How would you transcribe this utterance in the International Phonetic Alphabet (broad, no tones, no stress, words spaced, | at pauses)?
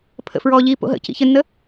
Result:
pʰə̰fɹɔːʎiː po̰ɦə̰ cḭçɘnːə